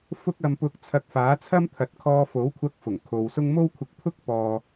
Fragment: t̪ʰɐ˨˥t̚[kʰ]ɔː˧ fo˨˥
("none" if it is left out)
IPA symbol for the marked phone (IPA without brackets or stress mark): kʰ